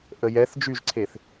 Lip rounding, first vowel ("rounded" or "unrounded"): unrounded